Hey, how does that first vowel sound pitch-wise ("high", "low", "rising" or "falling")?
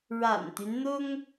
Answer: low